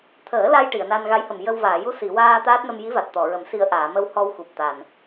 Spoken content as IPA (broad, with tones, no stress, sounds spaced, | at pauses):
t̪ʰ əː˨˩˦ l a˧ j ʈ i˨˩˨ ə̯ n a˧ n ɣ a˧˥ j h ə˨˩ m j ə˧ w v aː˨˩˨ j u˧ s i˨˩˨ w aː˧ t̪ aː˦˥ t̚ n ə˧ m j i˧˥ v a˨˩ t̚ t̪ ɔ˨˩˨ ɹ ə˨˩˦ m s i˧ ə̯ ʔ aː˨˩˨ m ə˧ w h ɔ˧ w x u˨˩ p̚ t̪ a˨˩ n